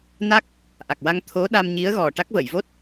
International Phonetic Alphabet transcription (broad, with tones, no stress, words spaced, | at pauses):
na˦˥k̚ | ʔa˨˩k̚wa˧ŋt̪ʰo˧˥ɗa˧m ɲi˧˥ə̯ɣɔ˨˩ ʈa˦˥k̚və˨˩˨jvo˦˥t̚